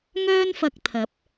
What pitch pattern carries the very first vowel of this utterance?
high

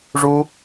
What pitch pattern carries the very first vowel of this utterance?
high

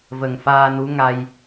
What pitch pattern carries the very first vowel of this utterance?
low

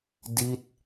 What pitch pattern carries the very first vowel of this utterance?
falling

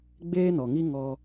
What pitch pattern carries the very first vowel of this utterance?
high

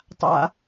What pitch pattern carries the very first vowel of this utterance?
low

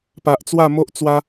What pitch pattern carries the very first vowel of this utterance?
low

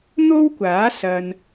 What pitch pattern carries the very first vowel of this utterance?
high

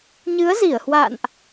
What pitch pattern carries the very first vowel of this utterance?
rising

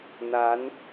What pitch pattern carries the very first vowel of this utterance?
rising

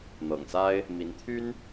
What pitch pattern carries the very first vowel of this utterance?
low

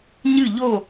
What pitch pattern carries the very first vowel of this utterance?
falling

